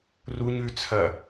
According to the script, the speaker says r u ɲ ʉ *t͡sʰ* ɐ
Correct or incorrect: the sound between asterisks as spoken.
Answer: correct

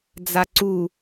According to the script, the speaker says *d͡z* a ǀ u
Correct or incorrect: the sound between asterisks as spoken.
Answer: correct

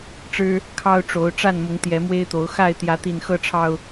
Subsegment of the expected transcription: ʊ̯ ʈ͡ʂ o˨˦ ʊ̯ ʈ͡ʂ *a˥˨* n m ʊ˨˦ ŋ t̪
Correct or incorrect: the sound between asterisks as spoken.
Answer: correct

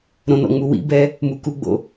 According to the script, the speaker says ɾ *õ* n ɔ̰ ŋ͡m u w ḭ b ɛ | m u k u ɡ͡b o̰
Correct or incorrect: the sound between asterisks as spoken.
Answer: correct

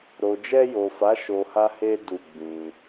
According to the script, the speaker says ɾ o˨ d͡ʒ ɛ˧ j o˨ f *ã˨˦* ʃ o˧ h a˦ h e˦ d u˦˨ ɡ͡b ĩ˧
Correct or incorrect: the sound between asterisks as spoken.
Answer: incorrect: a˨˦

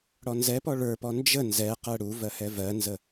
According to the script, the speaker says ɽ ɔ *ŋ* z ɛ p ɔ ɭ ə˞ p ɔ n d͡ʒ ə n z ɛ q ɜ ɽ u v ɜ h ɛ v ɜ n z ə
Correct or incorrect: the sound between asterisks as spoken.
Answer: incorrect: n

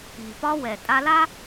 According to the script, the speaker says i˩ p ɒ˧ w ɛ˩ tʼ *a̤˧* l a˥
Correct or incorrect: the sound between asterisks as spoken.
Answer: incorrect: a˧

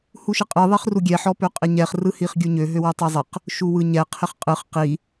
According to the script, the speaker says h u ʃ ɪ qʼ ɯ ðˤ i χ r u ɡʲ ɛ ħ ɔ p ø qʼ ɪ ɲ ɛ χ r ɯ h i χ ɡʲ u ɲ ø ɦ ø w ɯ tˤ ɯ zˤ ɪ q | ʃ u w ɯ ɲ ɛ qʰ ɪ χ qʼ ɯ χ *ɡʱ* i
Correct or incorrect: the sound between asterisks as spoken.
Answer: incorrect: q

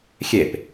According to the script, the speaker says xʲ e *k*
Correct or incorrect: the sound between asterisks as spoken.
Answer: incorrect: p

